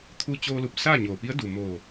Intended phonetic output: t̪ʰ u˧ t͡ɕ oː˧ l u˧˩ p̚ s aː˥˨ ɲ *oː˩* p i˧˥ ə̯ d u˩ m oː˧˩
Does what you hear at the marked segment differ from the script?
no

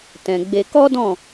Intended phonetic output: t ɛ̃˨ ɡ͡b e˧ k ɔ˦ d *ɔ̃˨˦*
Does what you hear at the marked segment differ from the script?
yes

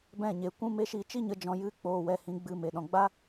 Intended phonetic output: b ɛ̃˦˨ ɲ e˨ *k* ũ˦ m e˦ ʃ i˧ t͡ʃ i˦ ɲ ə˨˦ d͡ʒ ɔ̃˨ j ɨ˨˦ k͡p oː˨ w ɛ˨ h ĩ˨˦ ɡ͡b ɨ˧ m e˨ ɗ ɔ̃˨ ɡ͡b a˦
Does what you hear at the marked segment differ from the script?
yes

